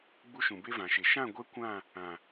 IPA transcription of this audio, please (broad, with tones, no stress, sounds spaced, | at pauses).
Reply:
ɡ͡b u˦ ʃ ũ˨ b e˦ v ã˨ ʃ e˨ ʃ ã˦˨ ɡʷ ɛ˦ kʷ ã˦˨ | ã˨